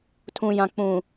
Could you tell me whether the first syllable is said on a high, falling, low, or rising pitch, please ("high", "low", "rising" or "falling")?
low